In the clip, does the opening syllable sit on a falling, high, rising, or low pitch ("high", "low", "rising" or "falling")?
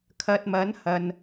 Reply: low